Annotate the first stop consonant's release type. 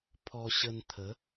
aspirated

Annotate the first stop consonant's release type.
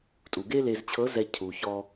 ejective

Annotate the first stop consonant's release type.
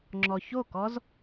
click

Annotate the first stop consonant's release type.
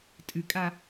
ejective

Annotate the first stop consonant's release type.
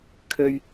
aspirated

